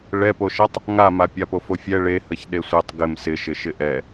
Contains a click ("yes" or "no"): no